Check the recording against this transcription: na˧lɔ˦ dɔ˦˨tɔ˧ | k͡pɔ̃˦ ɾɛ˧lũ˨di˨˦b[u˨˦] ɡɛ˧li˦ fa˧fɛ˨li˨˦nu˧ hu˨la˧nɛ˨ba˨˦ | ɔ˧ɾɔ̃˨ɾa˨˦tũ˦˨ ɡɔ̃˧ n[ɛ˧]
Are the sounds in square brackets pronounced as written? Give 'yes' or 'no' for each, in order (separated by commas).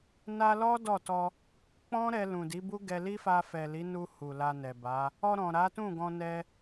no, yes